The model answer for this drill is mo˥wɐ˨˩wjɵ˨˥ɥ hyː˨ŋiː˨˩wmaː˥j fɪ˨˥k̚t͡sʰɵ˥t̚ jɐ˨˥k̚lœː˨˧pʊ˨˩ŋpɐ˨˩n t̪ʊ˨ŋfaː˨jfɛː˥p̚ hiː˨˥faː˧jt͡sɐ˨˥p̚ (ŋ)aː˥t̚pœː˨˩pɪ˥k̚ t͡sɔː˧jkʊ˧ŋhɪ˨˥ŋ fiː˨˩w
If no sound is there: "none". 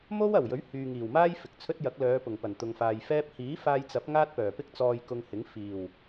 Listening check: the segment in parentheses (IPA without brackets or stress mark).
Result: ŋ